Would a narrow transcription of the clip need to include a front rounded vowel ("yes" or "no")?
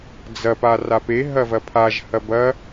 no